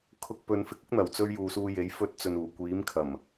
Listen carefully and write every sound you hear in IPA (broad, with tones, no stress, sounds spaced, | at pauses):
kʰ ʊ˧ k̚ p ɵ˨˧ n f ɪ˨ k̚ ʊ˥ k̚ n̪ ɐ˨˩ w t͡s ɵ˧ ɥ j uː˨ s uː˧ j e˨˥ j f ɵ˧ t̚ t͡s ɵ˨ n uː˨˩ kʷ iː˨˥ m kʰ ɐ˨˩ m